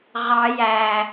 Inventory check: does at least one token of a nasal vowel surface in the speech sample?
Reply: no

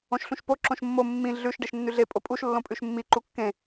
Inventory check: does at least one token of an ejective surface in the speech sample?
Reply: yes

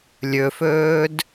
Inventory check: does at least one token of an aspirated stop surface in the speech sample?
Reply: no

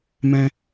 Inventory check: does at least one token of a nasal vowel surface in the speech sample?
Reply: yes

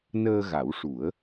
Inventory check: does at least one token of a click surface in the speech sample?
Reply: no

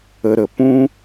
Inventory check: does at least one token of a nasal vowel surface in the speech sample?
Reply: yes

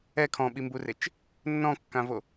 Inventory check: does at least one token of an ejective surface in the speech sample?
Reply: no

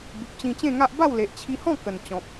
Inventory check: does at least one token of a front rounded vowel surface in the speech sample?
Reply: no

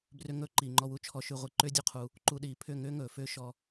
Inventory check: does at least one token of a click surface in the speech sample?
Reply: yes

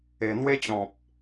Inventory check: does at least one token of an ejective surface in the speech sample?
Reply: no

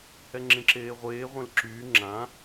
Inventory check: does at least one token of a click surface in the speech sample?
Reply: yes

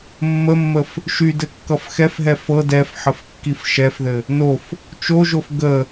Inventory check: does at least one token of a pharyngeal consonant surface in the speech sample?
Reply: yes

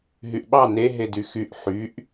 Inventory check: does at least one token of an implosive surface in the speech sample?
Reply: yes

